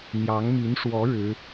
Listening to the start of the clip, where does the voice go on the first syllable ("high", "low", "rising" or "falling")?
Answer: rising